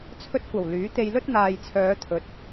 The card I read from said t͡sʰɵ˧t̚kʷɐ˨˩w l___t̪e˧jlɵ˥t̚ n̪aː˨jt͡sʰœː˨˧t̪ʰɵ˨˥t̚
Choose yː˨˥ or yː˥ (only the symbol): yː˨˥